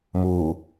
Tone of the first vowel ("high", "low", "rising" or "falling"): low